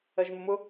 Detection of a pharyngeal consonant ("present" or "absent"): absent